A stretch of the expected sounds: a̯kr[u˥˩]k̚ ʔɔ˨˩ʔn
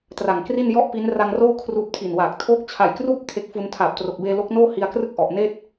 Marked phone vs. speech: incorrect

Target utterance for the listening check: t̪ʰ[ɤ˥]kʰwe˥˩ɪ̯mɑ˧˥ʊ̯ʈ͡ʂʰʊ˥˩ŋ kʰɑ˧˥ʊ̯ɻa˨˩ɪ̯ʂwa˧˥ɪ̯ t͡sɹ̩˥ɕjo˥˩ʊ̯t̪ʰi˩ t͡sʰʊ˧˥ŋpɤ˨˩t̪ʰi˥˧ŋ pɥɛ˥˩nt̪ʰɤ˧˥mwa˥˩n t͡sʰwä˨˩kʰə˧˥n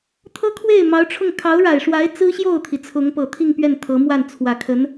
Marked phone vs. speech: correct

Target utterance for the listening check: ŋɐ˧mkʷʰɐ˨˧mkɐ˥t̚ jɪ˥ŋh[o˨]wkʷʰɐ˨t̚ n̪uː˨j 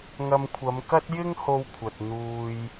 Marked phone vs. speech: incorrect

